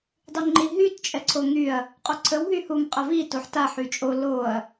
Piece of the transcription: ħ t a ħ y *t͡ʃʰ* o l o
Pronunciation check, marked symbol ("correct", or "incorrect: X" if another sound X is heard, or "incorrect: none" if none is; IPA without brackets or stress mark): incorrect: t͡ʃʼ